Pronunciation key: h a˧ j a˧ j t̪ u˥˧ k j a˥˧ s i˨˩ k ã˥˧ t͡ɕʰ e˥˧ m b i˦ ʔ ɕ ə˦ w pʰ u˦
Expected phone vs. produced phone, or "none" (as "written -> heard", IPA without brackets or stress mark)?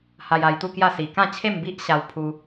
ə˦ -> a˦